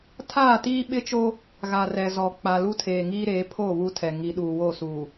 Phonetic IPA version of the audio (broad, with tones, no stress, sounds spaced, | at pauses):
tʰ aː˦˨ t iː˦ ɓ ɪ˦ t͡ʃ o˦ | ɣ a˨ r ɛ˨ z ɔ˨ k͡p a˨ l u˦ tʰ eː˨ ŋ iː˦ ɾ eː˨˦ pʰ o˦˨ β u˦ tʰ ɛ˨ ŋ i˨˦ ɗ uː˨ w o˦˨ s uː˨